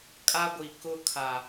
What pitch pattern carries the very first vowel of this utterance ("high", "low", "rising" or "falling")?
high